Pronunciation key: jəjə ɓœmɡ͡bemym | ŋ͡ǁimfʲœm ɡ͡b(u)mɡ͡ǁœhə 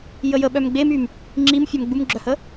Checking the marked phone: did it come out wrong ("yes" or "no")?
no